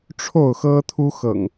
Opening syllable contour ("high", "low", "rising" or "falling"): falling